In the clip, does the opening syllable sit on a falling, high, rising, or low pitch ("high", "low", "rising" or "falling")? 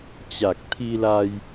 low